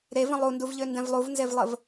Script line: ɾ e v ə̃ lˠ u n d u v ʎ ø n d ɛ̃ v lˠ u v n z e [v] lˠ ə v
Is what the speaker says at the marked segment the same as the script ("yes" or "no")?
yes